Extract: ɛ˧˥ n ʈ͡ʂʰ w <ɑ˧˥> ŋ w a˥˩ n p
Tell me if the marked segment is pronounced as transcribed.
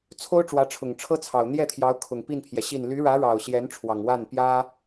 no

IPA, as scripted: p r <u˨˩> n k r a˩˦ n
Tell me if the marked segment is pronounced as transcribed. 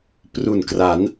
yes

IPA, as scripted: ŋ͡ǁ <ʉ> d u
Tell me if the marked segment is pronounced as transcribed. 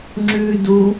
yes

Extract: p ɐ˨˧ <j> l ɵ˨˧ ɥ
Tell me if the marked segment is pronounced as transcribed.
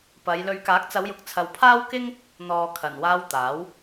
yes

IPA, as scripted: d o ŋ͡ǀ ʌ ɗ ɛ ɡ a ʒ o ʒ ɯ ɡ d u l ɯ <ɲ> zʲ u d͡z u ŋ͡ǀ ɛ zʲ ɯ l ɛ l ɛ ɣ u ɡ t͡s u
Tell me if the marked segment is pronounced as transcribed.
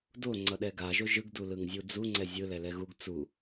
no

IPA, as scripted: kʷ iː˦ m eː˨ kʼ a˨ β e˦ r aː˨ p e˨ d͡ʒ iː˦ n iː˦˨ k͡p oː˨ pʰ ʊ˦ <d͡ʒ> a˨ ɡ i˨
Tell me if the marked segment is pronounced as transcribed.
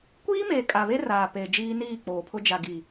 yes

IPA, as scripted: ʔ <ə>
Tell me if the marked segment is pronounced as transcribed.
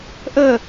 yes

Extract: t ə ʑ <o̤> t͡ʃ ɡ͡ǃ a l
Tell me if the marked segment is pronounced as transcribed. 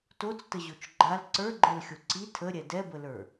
no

